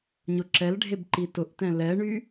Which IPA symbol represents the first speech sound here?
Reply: ɲ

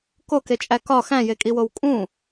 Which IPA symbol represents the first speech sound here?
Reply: k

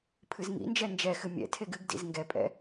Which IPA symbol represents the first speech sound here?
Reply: pʰ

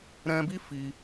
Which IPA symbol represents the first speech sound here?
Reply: ɾ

